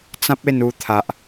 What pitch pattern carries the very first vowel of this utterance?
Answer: high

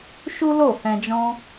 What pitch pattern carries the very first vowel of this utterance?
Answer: high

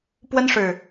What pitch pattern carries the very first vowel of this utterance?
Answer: high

